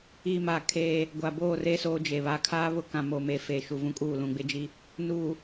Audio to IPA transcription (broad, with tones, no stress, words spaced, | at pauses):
i˨ma˨ kʰeː˦ | ɡʷa˨boː˦˨re˦ soː˦d͡ʒe˨ βa˨kʰaː˦ βʊ˦ kã˨moː˨meː˨ feː˨ ʃu˨vũ˦kʼuː˦˨ lũ˨ɡ͡bɪ˦d͡ʒi˦ | nuː˨